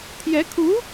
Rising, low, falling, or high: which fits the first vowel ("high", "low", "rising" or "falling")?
rising